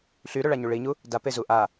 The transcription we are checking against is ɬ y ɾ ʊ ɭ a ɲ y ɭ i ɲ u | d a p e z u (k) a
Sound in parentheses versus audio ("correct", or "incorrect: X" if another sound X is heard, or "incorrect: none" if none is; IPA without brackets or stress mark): incorrect: ʔ